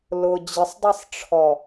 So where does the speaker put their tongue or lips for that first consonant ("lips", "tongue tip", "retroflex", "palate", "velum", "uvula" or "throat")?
tongue tip